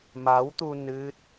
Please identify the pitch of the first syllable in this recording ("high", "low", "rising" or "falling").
rising